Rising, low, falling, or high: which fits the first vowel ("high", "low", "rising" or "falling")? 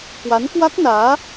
rising